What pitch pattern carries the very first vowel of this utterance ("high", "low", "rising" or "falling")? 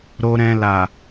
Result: low